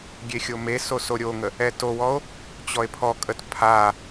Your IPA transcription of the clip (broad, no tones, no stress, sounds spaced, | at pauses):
ɡʲ e xʲ o m e s o s o ɾʲ o ŋ ə | ɛ t o w ɔ o̯ | t͡ɕ ɔ e̯ pʰ ɔ kʼ ə t pʰ a